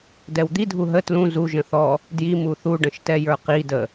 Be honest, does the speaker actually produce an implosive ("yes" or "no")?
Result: no